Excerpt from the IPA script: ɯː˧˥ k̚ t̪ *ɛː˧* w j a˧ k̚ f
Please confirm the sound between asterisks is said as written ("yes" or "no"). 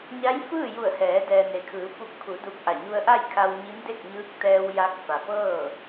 yes